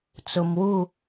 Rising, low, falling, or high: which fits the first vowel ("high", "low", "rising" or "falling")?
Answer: low